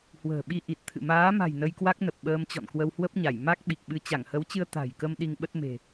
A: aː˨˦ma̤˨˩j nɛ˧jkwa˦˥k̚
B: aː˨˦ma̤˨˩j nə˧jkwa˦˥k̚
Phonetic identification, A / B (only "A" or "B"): B